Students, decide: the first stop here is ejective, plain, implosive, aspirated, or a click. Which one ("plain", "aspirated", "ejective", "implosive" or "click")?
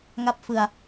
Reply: plain